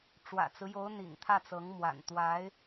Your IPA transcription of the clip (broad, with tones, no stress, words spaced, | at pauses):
ʈ͡ʂwä̰˨˩t͡sɹ̩˦jo˧˥ʊ̯ n̪ḭ˨˩ŋt̪ʰä˥˩t͡sɤ˧˥ŋ mwa̰˨˩nt̪wa˧˥ɪ̯